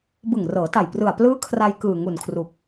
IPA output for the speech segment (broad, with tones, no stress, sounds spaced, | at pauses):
b ɯ˨˩ ŋ r ɤː˩˦ t a˨˩ j p r ɯ˨˩ a̯ p l ɯː˦˥ kʰ r a˧ j k ɯː˨˩ ŋ u˨˩ n kʰ r u˨˩ k̚